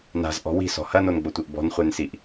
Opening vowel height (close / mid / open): open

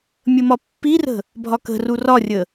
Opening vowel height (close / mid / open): mid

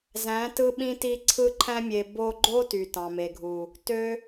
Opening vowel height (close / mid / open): open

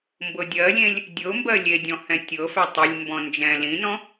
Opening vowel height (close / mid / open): mid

